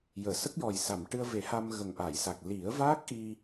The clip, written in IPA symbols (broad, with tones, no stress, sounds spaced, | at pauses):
j əː˨˩˨ s ə˦˥ k̚ j ɔ˨˩ j s a˨˩˨ m ʈ ɨ˧ ə̯ v e˨˩˦ h a˧ m ɣ ə˨˩ ŋ ʔ a˨˩˨ j s a˨˩ k̚ l i˨˩˦ ə̯ v aː˦˥ k̚ ʔ i˧